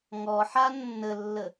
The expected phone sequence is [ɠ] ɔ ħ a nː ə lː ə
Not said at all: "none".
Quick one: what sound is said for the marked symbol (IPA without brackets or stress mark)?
ŋ